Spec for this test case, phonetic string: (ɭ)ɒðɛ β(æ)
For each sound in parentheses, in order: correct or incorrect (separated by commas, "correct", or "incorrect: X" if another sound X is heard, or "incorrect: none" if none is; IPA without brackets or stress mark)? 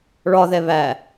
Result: correct, correct